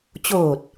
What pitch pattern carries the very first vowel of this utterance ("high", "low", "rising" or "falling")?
low